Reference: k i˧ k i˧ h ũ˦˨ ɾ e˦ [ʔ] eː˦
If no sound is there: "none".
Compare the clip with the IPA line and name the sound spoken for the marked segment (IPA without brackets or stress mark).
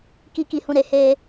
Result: h